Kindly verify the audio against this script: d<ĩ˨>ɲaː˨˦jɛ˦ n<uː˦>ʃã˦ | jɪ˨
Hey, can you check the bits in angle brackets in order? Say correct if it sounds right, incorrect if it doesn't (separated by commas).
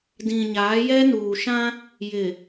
correct, incorrect